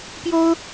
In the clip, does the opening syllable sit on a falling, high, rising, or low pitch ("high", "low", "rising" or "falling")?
high